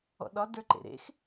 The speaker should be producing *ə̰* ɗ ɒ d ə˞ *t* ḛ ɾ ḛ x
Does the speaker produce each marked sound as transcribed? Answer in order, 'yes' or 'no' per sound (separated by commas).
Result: no, no